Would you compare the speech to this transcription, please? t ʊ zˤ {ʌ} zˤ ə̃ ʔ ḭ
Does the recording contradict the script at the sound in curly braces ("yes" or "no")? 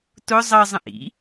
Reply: no